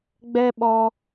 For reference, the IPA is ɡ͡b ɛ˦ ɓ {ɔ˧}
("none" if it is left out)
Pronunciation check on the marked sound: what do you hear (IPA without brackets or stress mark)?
ɔ˧